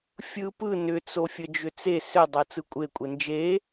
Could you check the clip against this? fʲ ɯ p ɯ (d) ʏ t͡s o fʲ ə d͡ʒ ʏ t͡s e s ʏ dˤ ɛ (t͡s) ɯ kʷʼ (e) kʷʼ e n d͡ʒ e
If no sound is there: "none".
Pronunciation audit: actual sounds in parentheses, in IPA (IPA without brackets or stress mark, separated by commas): n, t͡s, e